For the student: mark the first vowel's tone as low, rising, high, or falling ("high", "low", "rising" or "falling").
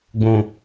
low